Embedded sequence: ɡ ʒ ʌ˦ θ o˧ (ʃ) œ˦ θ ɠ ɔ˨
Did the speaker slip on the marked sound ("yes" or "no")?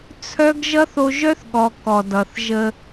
yes